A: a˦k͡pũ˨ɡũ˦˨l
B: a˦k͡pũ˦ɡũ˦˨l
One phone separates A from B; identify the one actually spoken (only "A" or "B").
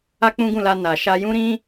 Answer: B